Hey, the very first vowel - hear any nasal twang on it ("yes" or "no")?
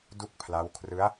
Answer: no